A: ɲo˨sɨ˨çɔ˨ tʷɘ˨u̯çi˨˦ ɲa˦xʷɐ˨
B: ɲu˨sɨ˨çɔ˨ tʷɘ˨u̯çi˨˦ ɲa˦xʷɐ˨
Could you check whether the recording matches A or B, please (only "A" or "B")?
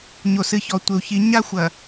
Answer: A